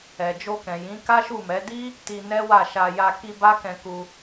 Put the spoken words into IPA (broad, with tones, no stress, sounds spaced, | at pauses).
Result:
ɛ˨ d͡ʒ o˧ k ɛ̃˨ j ĩ˨˦ k a˦ ʃ u˦˨ m ɛ˨˦ d i˦ | t i˧ n ɛ˦ w a˦˨ ʃ a˧ j a˧ k i˧ b a˦ k ɛ̃˧ k u˧